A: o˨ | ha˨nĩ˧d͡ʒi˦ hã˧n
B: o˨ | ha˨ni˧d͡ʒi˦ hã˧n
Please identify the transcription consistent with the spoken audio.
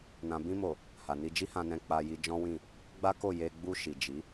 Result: B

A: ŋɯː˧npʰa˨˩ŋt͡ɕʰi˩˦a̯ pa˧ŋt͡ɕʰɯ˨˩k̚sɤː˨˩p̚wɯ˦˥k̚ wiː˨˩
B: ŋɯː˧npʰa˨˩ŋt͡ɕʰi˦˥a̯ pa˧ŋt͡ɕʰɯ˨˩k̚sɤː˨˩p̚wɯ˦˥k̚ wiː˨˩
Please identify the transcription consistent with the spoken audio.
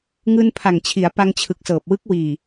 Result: A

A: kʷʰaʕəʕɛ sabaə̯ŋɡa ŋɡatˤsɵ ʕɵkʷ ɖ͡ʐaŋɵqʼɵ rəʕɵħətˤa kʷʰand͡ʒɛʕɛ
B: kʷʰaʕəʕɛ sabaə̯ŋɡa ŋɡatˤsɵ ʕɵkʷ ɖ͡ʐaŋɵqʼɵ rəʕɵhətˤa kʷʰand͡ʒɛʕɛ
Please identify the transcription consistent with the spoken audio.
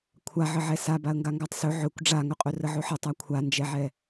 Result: A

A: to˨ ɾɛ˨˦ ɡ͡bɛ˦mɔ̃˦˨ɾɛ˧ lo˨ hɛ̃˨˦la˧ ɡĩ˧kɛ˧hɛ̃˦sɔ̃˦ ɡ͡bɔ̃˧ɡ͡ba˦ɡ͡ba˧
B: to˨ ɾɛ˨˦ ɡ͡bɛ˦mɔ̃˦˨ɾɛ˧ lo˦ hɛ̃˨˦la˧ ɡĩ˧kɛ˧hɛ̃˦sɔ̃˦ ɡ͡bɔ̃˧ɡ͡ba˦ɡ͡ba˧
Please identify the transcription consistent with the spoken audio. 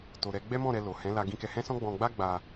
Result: A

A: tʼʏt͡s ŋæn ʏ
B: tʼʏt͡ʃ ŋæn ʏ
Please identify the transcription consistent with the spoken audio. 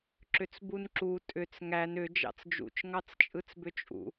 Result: A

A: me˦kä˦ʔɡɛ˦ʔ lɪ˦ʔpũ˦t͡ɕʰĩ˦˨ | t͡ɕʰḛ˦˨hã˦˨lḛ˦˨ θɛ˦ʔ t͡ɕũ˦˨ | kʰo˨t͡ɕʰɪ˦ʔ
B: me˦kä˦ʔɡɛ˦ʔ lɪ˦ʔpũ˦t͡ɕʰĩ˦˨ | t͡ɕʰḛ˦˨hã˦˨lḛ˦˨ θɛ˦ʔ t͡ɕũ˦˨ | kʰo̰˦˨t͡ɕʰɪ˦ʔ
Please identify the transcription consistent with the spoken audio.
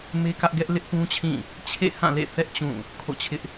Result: B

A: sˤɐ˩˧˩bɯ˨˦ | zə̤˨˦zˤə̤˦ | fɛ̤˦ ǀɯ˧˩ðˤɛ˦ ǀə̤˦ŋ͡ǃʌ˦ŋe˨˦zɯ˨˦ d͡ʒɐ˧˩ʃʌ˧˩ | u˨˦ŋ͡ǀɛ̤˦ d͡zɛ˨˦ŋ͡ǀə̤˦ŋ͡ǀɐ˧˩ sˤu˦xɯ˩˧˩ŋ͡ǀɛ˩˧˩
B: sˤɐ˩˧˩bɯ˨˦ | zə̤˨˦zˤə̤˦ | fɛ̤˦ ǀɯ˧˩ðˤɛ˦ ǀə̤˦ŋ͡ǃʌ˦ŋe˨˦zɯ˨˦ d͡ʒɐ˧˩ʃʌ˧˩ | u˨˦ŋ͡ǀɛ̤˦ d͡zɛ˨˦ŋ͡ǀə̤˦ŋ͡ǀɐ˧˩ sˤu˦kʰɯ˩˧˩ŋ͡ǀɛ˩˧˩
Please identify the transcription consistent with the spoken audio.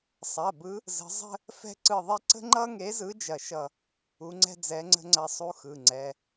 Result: A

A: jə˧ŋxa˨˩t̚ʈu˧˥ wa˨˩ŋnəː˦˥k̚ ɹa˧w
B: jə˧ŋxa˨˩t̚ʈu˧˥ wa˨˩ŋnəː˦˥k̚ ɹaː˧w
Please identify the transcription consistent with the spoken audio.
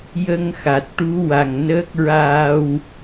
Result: B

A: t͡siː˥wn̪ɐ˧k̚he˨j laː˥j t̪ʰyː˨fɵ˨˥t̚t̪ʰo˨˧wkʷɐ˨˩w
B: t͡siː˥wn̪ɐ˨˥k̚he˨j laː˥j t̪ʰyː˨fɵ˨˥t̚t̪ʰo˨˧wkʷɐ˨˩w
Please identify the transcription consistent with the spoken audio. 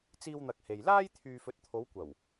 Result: A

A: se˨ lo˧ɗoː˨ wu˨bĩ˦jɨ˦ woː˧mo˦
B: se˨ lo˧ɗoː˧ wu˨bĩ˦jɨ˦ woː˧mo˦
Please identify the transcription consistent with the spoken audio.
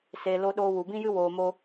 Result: B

